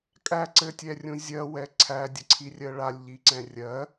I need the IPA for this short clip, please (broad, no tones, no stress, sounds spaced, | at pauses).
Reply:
kʼ æ ǀ ɘ tʲ ɛ rʲ ũ zʲ ɜ w ɛ ǀʰ æ dʲ ə ǀʰ i rʲ ɜ ɭ a lʲ ʎ i ǀ ɛ̃ rʲ ɜ